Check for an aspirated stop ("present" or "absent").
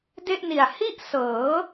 absent